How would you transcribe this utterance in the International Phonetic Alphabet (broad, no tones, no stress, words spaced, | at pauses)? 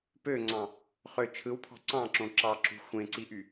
pøŋ͡ǀɑ̃ | χø t͡ʃʰɯwpʰɑ̤ ǀɑ̃ǁõ ǁɑǁṳ xʷẽǀiʔy